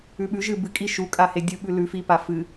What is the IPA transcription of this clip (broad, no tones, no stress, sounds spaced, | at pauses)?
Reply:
ʉ ɓ ʉ ʒ ɨ b ɨ kʼ i ʃ u kʼ a h e dʲ u ɓ ʉ l ʉ f i p a f ɨ